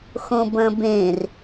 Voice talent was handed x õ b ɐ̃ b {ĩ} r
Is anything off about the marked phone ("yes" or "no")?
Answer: yes